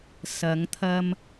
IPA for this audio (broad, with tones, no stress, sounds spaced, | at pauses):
s ɐ˨˧ ŋ t̪ʰ ɐ˧ m